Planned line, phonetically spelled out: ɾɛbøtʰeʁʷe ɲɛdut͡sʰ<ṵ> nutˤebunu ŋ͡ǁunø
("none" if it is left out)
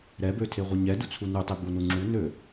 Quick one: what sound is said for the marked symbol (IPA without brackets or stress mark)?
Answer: u